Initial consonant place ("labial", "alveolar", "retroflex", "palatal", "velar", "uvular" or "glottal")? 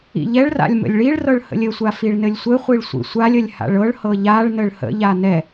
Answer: palatal